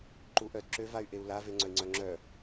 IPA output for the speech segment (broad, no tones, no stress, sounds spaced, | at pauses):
ǃ u ʔ œ d ǁ ø v a y̯ ʔ e u̯ l a v e ŋ͡ǀ œ i̯ ŋ͡ǀ œ ŋ͡ǁ œ